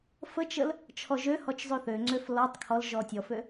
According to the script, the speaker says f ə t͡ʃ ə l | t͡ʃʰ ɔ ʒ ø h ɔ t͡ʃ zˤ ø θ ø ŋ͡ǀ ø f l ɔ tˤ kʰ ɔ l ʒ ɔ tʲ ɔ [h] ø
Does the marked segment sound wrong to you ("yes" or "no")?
yes